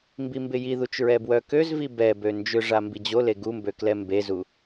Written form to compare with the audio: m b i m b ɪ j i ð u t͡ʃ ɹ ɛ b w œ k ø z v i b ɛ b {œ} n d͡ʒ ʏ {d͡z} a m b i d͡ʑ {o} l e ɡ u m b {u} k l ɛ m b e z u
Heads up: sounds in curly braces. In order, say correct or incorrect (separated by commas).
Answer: incorrect, incorrect, correct, incorrect